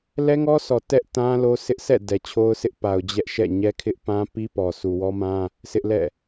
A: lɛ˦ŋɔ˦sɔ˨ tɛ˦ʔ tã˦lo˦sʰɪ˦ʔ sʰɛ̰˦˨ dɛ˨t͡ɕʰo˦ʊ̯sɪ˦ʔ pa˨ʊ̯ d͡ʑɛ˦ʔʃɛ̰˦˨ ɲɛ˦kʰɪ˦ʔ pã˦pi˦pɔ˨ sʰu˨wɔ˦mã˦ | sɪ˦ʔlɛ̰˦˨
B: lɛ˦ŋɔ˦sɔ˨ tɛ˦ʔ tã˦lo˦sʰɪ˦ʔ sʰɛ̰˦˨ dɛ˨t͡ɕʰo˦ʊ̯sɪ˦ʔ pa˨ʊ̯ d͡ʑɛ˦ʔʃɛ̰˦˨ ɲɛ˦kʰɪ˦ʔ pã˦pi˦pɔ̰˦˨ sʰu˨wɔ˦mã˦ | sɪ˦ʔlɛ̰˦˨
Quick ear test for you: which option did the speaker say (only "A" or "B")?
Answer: A